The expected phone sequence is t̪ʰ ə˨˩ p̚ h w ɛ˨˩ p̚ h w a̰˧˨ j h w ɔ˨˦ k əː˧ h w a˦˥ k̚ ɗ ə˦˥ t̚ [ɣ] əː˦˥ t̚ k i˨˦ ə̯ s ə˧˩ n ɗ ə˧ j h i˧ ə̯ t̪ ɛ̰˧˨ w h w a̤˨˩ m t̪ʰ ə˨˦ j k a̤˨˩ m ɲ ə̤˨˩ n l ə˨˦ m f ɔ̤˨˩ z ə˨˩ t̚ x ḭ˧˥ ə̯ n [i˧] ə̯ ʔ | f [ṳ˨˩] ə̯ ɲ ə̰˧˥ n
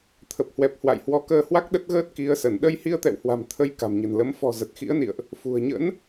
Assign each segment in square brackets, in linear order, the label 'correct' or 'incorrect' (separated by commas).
correct, incorrect, correct